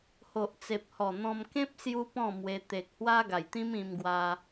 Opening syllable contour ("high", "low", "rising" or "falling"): low